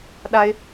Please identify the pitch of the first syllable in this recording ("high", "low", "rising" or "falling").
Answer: high